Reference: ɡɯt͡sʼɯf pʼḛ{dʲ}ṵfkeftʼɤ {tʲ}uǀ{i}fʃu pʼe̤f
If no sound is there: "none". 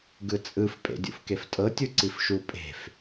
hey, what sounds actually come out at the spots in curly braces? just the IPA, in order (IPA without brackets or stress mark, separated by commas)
dʲ, tʲ, i